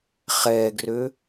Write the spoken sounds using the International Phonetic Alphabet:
χ ɛ ɡ r ø

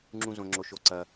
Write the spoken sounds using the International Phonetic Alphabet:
ŋ͡ǁ ũ˧ z õ˩ ŋ͡ǁ o˩ ʃ o˩ ǀ ɐ˩

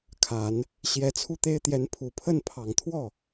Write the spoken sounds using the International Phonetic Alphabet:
kʰ a˨˩˦ n | ɕ j ɛ˧˥ t͡sʰ u˥˩ t̪ e˥ ɪ̯ t̪ j ɛ˧˥ n pʰ u˨˩ pʰ ə˥˩ n pʰ ɑ˨˩ ŋ t̪ʰ w ɔ˥˩

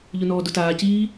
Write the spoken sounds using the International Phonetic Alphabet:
ʎ ʊ n ɔː d ʊ t aː c iː

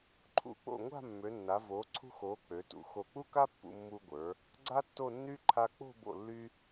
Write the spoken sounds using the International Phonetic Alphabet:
ǃʰ ṵ˧˩ k͡p o̰˧˩ ŋʷ a̤˥˧ mː ø˩˧ nː a˩˧ v oː˩˧ ǀʰ ṳ˧ x oː˩˧ k͡p ø˩˧ t ṵ˩˧ x o˧˩ k͡p u˥ k a˥ pː ṵ˧ mː u˧ ɡʷ ə˞˩˧ | ɡ͡ǀ a˥ tː o˥˧ nː y˥ ǃʰ a˧ k͡p o̤˥˧ b o̰˧˩ lː y˧

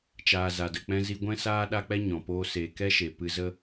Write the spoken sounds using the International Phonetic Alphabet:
t͡ʃ aː˧ z a˧ d ə˧ k͡p ɛ̃˦ z i˦ ɡʷ ɛ̃˧ s aː˧ ɗ a˦ k͡p ɛ˦ ɲ ɔ̃˨ p oː˦ s eː˧ k ɛ˦ ʃ e˨ p ɨ˧ z ə˦

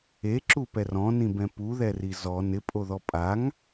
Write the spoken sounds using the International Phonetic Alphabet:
e ǁ u p ɛ r ɔ̃ n ĩ b ɛ̃ p u ð ɛ r i z ɔ n ɪ pʼ o ð ɔ pʼ a ŋ

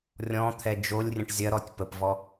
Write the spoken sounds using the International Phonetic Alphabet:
rʲ ɔ̃ t̪ʰ ɛ d͡ʒ o lʲ rʲ ə̃ ʈ zʲ ɐ ɾ ɔ tʲ p ə p v ɔ

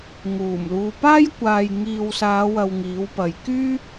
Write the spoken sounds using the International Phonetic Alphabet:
ŋ uː˨˩ m l uː˨ p aː˥ j kʷ aː˨ j ŋ iː˨ w s aː˨˧ w ɐ˨ w ŋ iː˨˥ w p ɐ˨ j k yː˥

